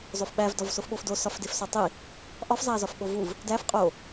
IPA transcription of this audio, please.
zˤ o f ɓ æ v d ɒ v s o f ɓ o f d o s ɒ f d e f s ɒ tˤ i | ʔ ɒ f zˤ æ z ɒ f ɓ o v u v | d æ f qʼ o

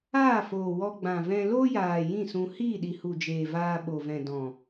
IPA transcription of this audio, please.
aː˦˨ f oː˨ w ɔ˧ ɡ͡b ã˨ v ɛ̃˧ l o˦ j aː˨ j ĩ˦˨ s ũ˧ h iː˦˨ ɗ i˨ h u˨ d͡ʒ eː˨ v aː˧ ɓ o˨ v ɛ̃˨ d ɔ̃˨

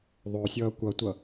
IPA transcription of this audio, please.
ðˤ o sʲ ʌː kʷ ʌ tʷ ʌ

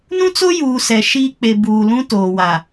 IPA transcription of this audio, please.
n ũ˦ t͡s o˦ j uː˨ s ɛ˨ ʃ iː˦ k͡p e˨ b uː˨ l ũ˦ t oː˨ w a˨

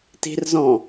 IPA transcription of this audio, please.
t i̤ r z ɔ̃

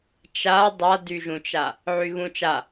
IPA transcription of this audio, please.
t͡ʃ a dˤ a d y ʒ ũ t͡ʃ a | ʕ y ɣ ũ t͡ʃ a

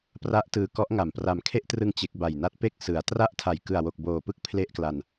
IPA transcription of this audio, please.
p r a˦˥ ʔ t ɯː˧ k ɔ˦˥ ʔ ŋ a˨˩ m p r a˨˩ m kʰ e˥˩ ʔ t r ɯ˧ ŋ t͡ɕ e˦˥ k̚ b a˨˩ j n a˦˥ t̚ p e˥˩ k̚ s ɯ˩˦ a̯ t r a˥˩ ʔ tʰ a˨˩ j k ɯ˨˩ a̯ w o˨˩ k̚ b oː˨˩ p ɯ˦˥ k̚ pʰ l e˥˩ ʔ k l a˧ n

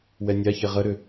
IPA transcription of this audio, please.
w ɛ nʲ a ç e ʁ ə ɾ ʏ

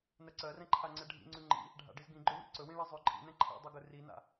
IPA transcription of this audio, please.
n ɜ ǀ ɜ r ɛ̃ ǃʰ a ŋ͡ǀ ɛ ɖʱ ḭ ŋ͡ǀ ʉ ŋ͡ǃ ḭ | ɖʱ a̰ ɖ i z ɡ ĩ ɡ͡ǃ ø w ḭ ǀ ɵ w ĩ ɭ i zˤ ø ǃʼ ḭ n ɛ̃ ǃʰ ḭ dˤ ø ɡ ɵ r i n a̰

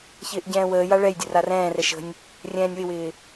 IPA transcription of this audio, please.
ç ɪː ʔ ɟ ɛ̃ː w əː j a ɭ ɛ j dʲ ə r a r ɛ̃ː r ɛ ʃ ə̤ nʲ | rʲ ɛ̃ː nʲ w ɪ w ɪː

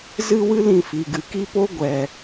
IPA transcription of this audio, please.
z ɨ˦ w ɨ˦ l ĩ˧ f i˨ ɡ ɨ˨ k i˦ p o˦ ɡʷ ɛ˨

